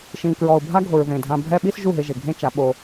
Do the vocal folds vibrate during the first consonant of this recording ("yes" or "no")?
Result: no